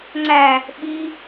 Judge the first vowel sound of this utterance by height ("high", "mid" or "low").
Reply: low